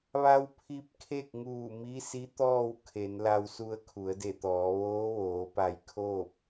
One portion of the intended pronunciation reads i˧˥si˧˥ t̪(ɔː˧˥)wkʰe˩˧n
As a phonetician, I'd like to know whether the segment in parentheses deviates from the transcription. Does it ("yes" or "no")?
yes